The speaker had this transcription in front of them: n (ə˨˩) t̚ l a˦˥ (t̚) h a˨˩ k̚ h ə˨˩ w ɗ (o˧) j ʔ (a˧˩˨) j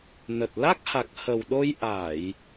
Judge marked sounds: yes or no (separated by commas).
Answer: yes, no, yes, yes